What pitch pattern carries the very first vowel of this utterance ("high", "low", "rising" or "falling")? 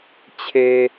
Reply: low